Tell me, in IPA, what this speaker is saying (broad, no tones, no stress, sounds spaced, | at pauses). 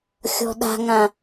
xʲ ɔ̤ ɗ a̤ ŋ ã